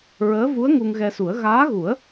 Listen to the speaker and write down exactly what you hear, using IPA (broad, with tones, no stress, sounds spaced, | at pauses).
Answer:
ɹ əː˧˥ v u˧˥ ə̯ ŋ u˧ ŋ ɣ ɛ˧ s u˨˩˦ ə̯ ɣ aː˧˥ ɣ u˨˩˦ ə̯